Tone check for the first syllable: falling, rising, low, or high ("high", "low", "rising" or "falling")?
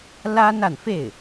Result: high